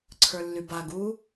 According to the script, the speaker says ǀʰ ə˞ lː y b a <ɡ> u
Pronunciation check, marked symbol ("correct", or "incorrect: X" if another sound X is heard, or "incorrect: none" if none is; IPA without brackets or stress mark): correct